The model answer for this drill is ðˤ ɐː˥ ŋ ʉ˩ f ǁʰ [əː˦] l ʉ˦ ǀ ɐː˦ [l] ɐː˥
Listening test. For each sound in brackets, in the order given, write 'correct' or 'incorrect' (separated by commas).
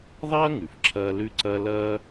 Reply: incorrect, correct